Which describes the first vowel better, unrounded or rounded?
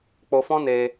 rounded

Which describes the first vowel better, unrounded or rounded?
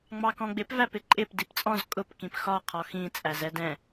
unrounded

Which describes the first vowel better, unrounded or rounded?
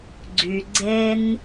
rounded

